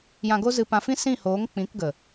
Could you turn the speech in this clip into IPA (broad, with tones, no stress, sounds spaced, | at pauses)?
j ã˧ ɡ o˦ z ɨ˧ p ã˧ f ĩ˦ s ĩ˦˨ h oː˨˦ ŋ k͡p ĩ˨˦ k ɡ ə˨